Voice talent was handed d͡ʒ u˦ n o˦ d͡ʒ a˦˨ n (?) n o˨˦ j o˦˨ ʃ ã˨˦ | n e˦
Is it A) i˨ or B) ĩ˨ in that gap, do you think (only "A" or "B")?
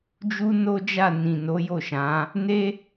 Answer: B